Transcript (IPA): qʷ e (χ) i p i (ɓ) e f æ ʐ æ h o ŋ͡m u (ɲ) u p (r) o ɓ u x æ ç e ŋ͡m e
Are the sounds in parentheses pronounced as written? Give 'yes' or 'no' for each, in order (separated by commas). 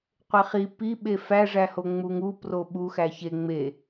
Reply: yes, yes, no, yes